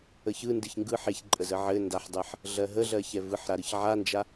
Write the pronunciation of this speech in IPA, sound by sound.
ə ç ɯ n d ɨ ç ŋ ɡ ɯ ħ e ç ǃʼ ə z ə ʕ ɘ n d a ħ dˤ ɜ ħ | ɮ ɜ ɦ ə ɮ ɜ ç ɛ v ɯ ħ ɾ a ɾ ɯ ç ʕ a n d͡ʒ a

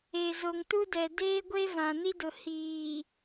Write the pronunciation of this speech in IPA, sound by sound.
e˨ z o˨ ŋ t u˦ d ɛ˨ d eː˦ ɡʷ e˦ v ã˨ n i˦ d ʊ˨ h iː˨

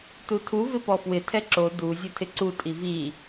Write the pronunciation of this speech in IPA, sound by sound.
t u tʰ u v ɪ p ɔ f w ɪ tʰ ɛ ǁ o d u zʲ o tʰ ɪ ǀ u tʼ i v i

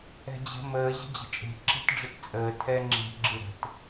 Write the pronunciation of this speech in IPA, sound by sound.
ɛ̤ d͡ʑ ə̤ m əː ʑ ə̤ d͡ʑ ə̤ t͡ʃʼ e̤ ǁ ɛ̤ t ɖ͡ʐ ə t t͡sʼ əː tʰ ɛː ŋ͡ǁ e̤ ɡ͡ǁ ɨ ɾ ə̤ t

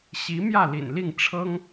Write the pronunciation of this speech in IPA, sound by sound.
ɕ i˧˥ m j ä˥˩ l ḭ˨˩ n l i˥˩ ŋ ʈ͡ʂʰ ɤ˥ ŋ

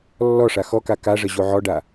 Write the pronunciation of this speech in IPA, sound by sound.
lː ɔ ʂ a x ɔ k a k a ʐ ə ʑ o ʕ ɔ ɖ a

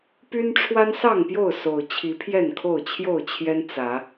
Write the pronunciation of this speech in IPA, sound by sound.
p y˦ n ʈ͡ʂʰ w a˦ n s ɑ˥˨ ŋ p j o˥˨ ʊ̯ s o˨˩ ʊ̯ t͡ɕʰ i˨˦ pʰ j ɛ˥˨ n kʰ o˥˨ ʊ̯ t͡ɕʰ j o˥˨ ʊ̯ t͡ɕʰ j ɛ˦ n t͡s ä˨˦

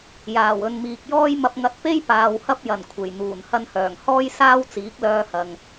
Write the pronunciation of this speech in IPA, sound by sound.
j aː˨˩ w ɵ˨ n m iː˨ k̚ j ɔː˥ j m ɐ˧ p̚ ŋ ɐ˧ t̚ p e˥ j p aː˨ w h ɐ˥ p̚ j ɐ˨˩ n kʷʰ e˨˩ j n̪ uː˨˩ n h ɐ˧ n h œː˨˩ ŋ h ɔː˥ j s aː˥ w t͡s iː˨˥ k̚ l œː˧ h ɐ˨ ŋ

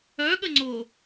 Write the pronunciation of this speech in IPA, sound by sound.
œ ɠ ə ŋ͡ǀ o

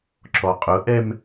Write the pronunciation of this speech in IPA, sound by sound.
ǁ ɔ qʼ ʊ ʔ ɛ m

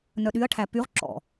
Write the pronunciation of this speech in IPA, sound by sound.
n œ ɗ y ɐ̯ ʈʰ æ p y ʁ ǁ ɔ̰

